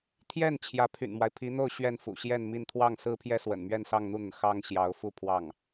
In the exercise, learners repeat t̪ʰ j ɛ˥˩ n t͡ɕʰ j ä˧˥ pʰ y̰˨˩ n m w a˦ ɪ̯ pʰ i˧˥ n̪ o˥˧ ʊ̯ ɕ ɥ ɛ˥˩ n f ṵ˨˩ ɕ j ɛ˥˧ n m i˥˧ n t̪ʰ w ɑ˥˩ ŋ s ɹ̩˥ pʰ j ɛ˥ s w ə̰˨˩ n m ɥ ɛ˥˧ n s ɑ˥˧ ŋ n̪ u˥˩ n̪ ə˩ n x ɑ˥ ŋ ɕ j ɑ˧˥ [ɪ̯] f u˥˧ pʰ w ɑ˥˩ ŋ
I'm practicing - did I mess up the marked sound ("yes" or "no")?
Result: yes